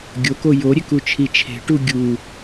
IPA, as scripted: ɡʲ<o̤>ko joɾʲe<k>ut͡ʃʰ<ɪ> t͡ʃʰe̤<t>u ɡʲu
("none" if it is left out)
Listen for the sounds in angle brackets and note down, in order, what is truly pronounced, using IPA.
o, k, i, ʈ

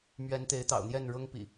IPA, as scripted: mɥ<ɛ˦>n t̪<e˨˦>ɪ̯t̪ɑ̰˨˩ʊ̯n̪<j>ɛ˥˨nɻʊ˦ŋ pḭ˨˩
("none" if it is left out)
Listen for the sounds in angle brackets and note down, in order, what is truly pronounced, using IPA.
ɛ˨˦, e˨˦, j

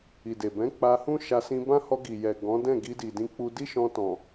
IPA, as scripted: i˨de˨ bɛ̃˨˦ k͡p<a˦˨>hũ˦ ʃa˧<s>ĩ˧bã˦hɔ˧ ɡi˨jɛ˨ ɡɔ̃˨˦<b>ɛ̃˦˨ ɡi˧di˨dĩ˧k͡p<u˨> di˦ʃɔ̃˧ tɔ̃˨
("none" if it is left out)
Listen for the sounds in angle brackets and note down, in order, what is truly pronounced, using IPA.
a˧, s, d, u˧

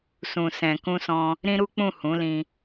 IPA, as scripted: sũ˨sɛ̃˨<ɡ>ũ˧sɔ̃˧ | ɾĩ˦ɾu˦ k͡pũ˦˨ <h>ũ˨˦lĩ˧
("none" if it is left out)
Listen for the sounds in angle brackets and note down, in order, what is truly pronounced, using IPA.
k, h

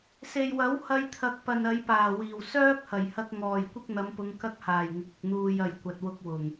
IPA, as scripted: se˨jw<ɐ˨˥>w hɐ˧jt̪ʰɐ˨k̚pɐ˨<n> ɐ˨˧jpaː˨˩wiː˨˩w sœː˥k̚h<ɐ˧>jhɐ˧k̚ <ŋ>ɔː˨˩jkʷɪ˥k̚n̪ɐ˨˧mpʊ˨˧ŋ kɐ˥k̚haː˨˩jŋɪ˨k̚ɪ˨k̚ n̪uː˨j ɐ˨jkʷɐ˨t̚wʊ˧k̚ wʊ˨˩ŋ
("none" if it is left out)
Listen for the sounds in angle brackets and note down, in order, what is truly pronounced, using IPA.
ɐ˨˥, n, ɐ˨˩, ŋ

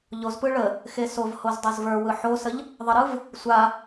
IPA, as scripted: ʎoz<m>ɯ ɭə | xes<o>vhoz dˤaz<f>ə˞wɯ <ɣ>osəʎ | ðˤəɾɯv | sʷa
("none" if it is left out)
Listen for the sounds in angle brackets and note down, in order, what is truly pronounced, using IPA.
p, o, v, ħ

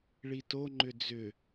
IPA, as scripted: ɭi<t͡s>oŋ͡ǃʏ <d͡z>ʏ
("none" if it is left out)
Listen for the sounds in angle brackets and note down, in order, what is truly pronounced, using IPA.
t, d͡z

